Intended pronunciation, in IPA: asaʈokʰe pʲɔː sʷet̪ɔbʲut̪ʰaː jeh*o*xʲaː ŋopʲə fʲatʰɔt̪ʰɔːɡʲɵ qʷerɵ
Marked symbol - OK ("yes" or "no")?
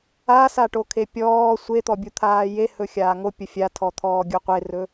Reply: no